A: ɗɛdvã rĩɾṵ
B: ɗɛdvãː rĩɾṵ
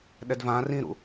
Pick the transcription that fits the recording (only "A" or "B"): B